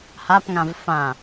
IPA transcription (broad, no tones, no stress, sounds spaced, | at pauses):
h a p ŋ ã v f ã